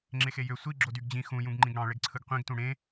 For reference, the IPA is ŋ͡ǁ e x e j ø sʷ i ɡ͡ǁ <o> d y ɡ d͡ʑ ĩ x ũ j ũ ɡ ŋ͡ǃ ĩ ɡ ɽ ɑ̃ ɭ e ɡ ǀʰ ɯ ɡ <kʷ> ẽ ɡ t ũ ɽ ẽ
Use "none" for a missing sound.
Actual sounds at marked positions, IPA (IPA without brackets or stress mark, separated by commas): o, qʷ